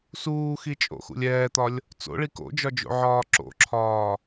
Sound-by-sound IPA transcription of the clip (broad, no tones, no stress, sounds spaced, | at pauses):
s uː x i t͡ʃʼ o̰ x ṵ lʲ ɛː t̪ ɒ lʲ | t͡s o̰ ɭ i k o̰ d͡ʒ ɒ d͡ʒ o̰ ʕ ɒː ǁ o̰ ǁʰ ɒː